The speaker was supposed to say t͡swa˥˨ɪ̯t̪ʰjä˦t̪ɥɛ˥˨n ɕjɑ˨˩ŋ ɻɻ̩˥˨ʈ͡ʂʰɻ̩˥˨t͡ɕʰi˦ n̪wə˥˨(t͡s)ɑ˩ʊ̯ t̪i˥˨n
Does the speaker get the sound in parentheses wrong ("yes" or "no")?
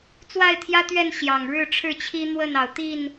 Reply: yes